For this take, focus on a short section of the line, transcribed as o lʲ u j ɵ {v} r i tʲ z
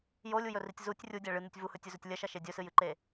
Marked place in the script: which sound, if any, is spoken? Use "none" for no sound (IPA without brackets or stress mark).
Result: none